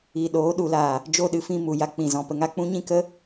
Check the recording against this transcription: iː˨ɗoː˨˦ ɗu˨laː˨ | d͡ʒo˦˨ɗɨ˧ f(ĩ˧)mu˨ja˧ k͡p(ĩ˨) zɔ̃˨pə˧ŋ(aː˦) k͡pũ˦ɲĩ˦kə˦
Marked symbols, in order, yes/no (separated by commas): yes, yes, no